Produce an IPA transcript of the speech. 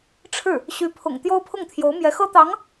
ʈ͡ʂʰ ɻ̩˥˩ | ɕ y˧˥ pʰ ʊ̰˨˩ ŋ t̪ j o˥ ʊ̯ pʰ ʊ˥˩ ŋ t̪ʰ j o˧˥ ʊ̯ m j ɛ˧˥ x ɤ˥ t̪ ɑ˧˥ ŋ

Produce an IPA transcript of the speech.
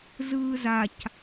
z ɯː z a c

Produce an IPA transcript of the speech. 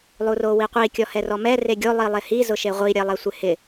lˠ u r o w i qʷ i kʲ ɔ h ɛ r ɔ m ɛ r e ɡʲ o lˠ i lˠ e h i z ʊ ʃ e ʁʷ i ɾʲ e lˠ ɛ sʷ ɪ h ɪ

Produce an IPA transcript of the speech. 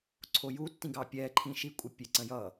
ǀʰ o j u tː ĩ ɡ ɑ pʲ ɛ ǃʰ ĩ ʃ i kʷʼ ə pʲ e ǀ ə̃ j ʌ

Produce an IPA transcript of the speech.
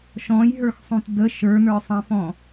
ʃ ɔ̃ j ɦ ə˞ x sˤ ũ t d ə ʃ ə˞ n ə˞ sˤ ɛ̃ f ɔ̃

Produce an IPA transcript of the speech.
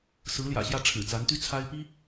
s ɹ̩˧˥ l j ä̰˨˩ ɕ j ä˥˩ ʈ͡ʂʰ ɻ̩˨˩ t͡s a˧˥ n t̪ y˥ t͡sʰ a˥ ɪ̯ p i˥

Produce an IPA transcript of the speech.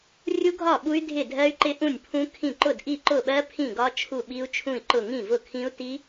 rʲ u˦˥ ɡʱ ɒ˥˩ ɓ u˦˥ y̯ dʱ ɪ˥˩ dʱ ɜ˦˥ y̯ ǃ ɪ˦˥ ʔ ũ˥˩ nʲ pʰ ũ˦˥ kʰ ĩ˥˩ ǃ ʊ˥˩ d ʔ i˥˩ ǃ ʊ˥˩ ɓ ɜ˦˥ pʰ ĩ˥˩ ɡ ɒ˦˥ t͡ʃʰ u˥˩ ɓ i˦˥ u̯ t͡ʃʰ ũ˥˩ i̯ ǃ ʊ˥˩ ŋ ĩ˥˩ v ʊ˥˩ kʰ ĩ˦˥ u̯ t i˦˥

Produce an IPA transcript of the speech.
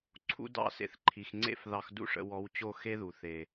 ǀʰ ṵ˦ d ɑ̰˦˨ s ḛ˧ θ ǃʰ i˨ x ŋ͡ǀ ḛ˦ f ð ɑ˧ x d ṵ˦˨ ʂ ə̰˧ w ɔ˨˦ w t͡ɕ o˦˨ x e˦ ð u˨ θ e˨

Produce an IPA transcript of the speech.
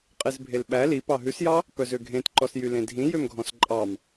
qʼ e z bʱ e l ɓ æ l i p ɑ ɦ ʉ s j ɑ | p œ z ø ɡʱ ẽ t ǃ ɔ s j y l ẽ dʱ ĩ j ø m ɡʱ ɔ̃ s ǃʼ ɑ m

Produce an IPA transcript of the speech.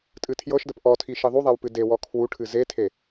tʼ ɨ tʰ j ɤ ʃ d ə p ʔ ɔ tʰ i ʃ i ðˤ u ðˤ ɛ w p ɨ d e w ɔ kʰ w u ʈʰ ɨ z e tʰ e

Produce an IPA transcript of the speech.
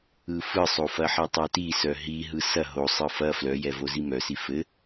ɯ f ɯ sˤ o f ɐ ħ i tˤ œ t i s œ ɦ i ɦ ɯ s ɐ ɦ o sˤ ɯ f ɐ f l œ j ɛ v o z i m œ s i f ɘ

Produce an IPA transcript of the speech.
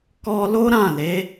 k ɔ˧ l o˦ ɾ ã˦˨ l e˨˦

